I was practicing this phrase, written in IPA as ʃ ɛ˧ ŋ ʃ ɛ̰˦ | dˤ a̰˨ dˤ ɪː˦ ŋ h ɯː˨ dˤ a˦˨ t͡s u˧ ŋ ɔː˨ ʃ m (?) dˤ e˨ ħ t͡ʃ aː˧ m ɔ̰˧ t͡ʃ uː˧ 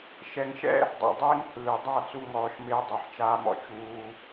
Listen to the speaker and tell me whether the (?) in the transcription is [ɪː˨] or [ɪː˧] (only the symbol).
ɪː˧